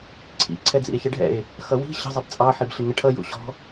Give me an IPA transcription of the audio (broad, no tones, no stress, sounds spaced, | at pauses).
ǀʰ ḭ ǀʰ ɛ d͡z ḭ e̯ ç ə ɖʱ ɛ̰ e̯ | x ʌ w i̤ ɕ ə̤ zˤ ɪ b t͡sʼ ɑ ħ i b ɬ ɪ ŋ ə ʈʰ ʌ j ṵ ɕ ɔ̤